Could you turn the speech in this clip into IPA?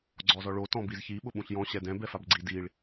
ɡ͡ǀɔzɔɭo tɔ̃bizçi ɓʊɓũɬjɔ̃ ɕɛdɛ̃ bɛfabɡ͡ǀi diɭ

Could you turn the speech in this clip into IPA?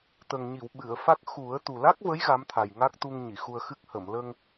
t̪ə˨˩ŋɲi˨˩˨w ɓɨ˨˩˨ə̯fa˦˥k̚ xu˨˩˦ə̯ t̪u˨˩la˦˥k̚və˧˥j ɣa˧˥mt̪ʰa˨˩j ŋa˦˥k̚t̪u˧ŋ ɲi˨˩˨xu˧ə̯xɨ˦˥k̚ hə˨˩˨mlə˧ŋ

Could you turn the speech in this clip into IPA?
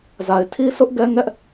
za˨ɪ̯tʰi˦sʊ˦ʔ ɡɛ˦ŋɛ˦ʔ

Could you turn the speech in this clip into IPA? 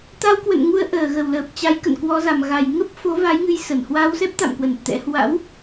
t̪a˧wkwə̰˧˨nŋu˧ə̯ ʔəː˧˩ɣə˧˩wləː˨˩p̚t͡ɕa˨˦j kə̰˧˨nkwɔ˨˦za˨˩m ɣa˨˩j ŋə˦˥p̚fo˨˦ va˨˦jŋɨ˧j sə˧˩n hwa˧wsɛ˦˥p̚t̪a̰˧˨mkwə˧˩n t̪ɛ̰˧˥ hwa̰˧˥w

